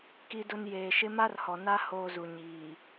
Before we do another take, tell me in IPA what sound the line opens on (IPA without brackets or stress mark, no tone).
k